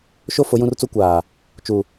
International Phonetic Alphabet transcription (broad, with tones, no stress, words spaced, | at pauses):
ʃo˦ fʊ˨˦jũ˦rt͡su˦ kʷaː˨ | t͡ʃu˨